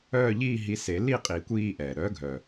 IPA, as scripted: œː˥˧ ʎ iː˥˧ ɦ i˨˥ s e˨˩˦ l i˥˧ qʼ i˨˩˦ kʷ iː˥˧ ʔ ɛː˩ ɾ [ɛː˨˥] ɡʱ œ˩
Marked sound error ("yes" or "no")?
yes